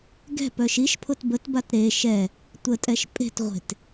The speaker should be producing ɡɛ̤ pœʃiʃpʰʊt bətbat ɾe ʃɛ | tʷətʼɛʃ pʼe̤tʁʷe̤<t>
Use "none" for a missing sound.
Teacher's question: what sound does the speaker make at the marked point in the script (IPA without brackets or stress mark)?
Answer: t